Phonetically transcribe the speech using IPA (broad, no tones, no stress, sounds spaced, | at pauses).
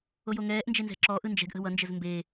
o j o ŋ ɛː ʔ n d͡ʒ e n z ɛ̤ ǁ ɔː ʔ ɯ n d͡ʒ ɛ̤ ɡ ʔ ə̤ w ʌ n d͡ʒ ə z m b e